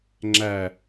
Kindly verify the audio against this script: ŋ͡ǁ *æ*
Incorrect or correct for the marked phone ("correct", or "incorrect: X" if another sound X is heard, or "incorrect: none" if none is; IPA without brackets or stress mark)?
correct